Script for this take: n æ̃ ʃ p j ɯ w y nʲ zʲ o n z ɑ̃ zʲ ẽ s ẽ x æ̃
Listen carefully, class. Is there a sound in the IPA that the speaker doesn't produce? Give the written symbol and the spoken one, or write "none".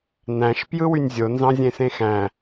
none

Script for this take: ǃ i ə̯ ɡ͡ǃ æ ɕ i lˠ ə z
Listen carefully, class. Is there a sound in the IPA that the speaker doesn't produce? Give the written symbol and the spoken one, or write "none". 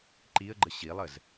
æ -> ə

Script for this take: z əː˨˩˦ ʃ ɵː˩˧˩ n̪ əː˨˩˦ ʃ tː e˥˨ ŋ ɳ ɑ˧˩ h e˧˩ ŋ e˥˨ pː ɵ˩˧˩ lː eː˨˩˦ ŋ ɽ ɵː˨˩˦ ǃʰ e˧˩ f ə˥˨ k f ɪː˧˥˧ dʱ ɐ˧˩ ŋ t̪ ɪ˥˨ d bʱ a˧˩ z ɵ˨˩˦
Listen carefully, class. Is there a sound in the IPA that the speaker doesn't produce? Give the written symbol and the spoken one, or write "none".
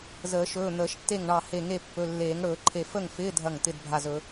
k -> ŋ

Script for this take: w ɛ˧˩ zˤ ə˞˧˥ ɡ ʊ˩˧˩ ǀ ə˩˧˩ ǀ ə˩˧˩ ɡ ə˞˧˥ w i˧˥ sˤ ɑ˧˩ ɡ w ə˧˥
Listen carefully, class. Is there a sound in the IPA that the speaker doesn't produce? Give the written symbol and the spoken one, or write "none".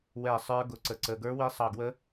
zˤ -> sˤ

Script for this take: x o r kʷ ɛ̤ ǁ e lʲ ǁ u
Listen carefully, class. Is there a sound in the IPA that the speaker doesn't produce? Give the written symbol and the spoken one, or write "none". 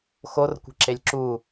none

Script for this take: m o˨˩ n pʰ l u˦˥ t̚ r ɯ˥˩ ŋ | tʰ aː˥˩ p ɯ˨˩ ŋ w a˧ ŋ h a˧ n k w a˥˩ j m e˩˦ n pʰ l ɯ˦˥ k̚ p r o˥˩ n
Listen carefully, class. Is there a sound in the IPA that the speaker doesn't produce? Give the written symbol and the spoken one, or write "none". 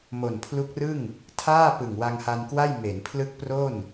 t̚ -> k̚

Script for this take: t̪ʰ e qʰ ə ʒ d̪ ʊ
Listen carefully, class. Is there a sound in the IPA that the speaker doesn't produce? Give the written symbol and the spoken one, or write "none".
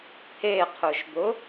ə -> ʊ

